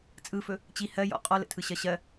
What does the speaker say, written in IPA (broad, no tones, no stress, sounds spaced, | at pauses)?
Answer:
t͡sʼ ɯ f ɵ | t͡ɕ i h ɜ j ɔ̰ qʼ ɔ l ə̰ tʰ ɯ ɕ ɜ ɕ ɜ